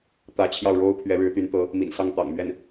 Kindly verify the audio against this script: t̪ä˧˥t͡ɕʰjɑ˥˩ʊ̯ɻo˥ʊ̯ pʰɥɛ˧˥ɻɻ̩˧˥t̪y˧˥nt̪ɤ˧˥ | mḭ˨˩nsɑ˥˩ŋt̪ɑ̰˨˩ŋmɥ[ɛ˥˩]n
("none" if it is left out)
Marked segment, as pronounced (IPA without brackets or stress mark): ɛ˥˩